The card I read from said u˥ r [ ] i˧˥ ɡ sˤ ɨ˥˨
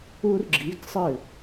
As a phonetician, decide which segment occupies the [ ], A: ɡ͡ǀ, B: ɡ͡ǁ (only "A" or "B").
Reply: B